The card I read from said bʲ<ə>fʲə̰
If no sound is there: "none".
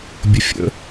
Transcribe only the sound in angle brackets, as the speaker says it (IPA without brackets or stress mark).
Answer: ə